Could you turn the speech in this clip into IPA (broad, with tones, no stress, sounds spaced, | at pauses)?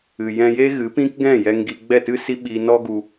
ɨ˨ j ɛ̃˧ j e˦ ɣ ɨ˨˦ p ĩ˦ k ɡ ɛ̃˦˨ j ɛ˧ ŋ ɡ i˧ ɡ͡b ɛ˦˨ t ɨ˦ s i˦ ɓ i˧ n ɔ˦ ɡ u˧